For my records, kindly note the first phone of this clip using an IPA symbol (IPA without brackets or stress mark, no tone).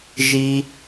ʒ